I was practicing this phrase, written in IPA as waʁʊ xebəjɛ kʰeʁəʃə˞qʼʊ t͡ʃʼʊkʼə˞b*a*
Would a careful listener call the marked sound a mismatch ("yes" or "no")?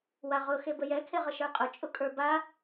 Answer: no